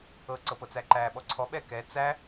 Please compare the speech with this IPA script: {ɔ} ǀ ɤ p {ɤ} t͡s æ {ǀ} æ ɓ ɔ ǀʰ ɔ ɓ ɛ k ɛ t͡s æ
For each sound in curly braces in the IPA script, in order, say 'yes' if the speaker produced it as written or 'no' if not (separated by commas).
no, yes, no